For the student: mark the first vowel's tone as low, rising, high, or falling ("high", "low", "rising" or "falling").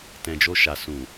low